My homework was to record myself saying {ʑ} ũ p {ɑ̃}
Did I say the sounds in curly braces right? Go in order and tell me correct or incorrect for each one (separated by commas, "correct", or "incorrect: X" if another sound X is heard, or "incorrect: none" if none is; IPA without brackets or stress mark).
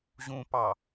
correct, incorrect: ɑ